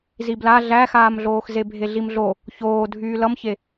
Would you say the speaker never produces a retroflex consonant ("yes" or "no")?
yes